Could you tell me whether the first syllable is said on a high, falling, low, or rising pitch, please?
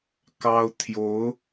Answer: high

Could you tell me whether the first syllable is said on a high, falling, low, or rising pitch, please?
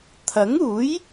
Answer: rising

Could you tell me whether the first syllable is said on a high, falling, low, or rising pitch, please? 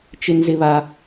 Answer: high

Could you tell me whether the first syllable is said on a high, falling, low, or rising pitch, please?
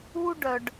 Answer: high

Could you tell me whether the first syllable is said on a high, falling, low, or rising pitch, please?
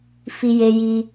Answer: high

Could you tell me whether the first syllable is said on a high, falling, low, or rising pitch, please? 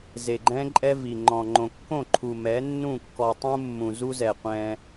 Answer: low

